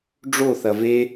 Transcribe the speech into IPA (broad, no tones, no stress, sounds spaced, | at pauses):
ɖ͡ʐ o θ ɐ v e